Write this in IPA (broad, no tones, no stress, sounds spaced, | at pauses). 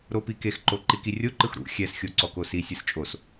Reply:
ɾ o p i k e x ǃ o ǃ i k i rʲ o ǃ ɯ x ɾ ṵ xʲ ɛ s xʲ o ǀ ɔ k o s i sʲ ɯ s t͡ʃʼ o s